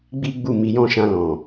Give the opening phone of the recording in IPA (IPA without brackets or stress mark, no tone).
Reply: ɡ͡b